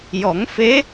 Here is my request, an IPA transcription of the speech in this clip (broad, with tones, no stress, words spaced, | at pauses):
jɔ˨˩˦ŋfe˧˥